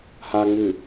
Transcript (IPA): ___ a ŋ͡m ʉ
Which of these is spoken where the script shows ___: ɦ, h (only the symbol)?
h